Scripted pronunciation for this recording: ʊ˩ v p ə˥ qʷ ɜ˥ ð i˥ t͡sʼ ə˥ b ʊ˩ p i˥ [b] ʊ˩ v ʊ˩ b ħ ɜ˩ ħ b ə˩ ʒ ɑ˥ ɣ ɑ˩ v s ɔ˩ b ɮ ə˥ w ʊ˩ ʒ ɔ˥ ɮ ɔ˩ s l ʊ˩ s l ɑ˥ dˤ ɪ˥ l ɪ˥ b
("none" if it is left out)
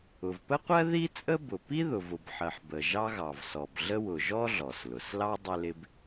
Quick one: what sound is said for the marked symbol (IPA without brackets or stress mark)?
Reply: ð